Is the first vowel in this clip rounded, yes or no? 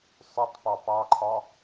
yes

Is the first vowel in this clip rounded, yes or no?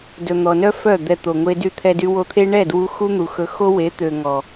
yes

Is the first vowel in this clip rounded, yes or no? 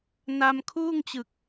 no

